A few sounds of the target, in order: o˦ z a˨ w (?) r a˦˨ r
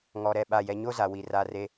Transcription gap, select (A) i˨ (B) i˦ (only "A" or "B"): A